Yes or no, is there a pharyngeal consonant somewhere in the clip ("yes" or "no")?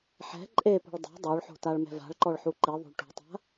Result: yes